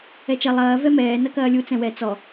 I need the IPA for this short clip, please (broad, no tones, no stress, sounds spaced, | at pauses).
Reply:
ɛ t͡ʃ ɐ lˠ ɐː v ɛ m ɛː n ɐ k ɐː lʲ u t͡s ɛ̃ w ɛ t͡s ɔ